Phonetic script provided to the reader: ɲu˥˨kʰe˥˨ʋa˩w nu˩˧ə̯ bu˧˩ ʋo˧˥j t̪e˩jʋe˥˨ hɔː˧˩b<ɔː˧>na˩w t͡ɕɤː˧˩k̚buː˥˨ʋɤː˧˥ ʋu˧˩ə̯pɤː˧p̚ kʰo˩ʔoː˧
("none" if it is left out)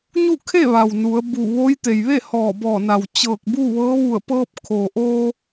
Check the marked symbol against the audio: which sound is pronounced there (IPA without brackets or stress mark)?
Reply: ɔː˧˩